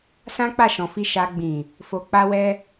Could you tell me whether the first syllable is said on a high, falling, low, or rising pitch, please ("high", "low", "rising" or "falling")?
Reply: high